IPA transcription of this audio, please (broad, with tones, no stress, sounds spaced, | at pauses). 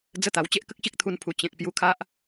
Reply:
d͡z ə˦ t̪ a˨˩ w t͡ɕ e˦ ʔ k ə˦ k̚ ɕ i˦ k̚ t̪ʰ u˧ n pʰ u˨˩ t͡ɕ ẽ˨ k̚ p j u˧ kʰ a˦ ʔ